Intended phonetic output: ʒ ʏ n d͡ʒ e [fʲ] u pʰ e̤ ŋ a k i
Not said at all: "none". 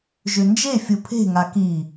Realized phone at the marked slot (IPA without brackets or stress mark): fʲ